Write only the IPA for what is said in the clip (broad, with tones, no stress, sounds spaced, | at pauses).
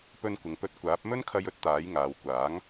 p ɵ˧ n kʷ ɪ˨ ŋ p ɵ˧ t̚ kʷ aː˨˥ p̚ m ɵ˥ n kʰ ɐ˧ j ɵ˥ t̚ t̪ aː˨˥ j ŋ aː˨˧ w kʷ aː˨˥ ŋ